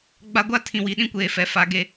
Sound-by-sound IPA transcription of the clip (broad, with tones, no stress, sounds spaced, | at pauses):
ɡ͡b a˦ ɡʷ a˦ tʰ ĩ˨ w i˨ ɗ ĩ˦ kʷ eː˨ f ɛ˨ f a˨ ɡ e˦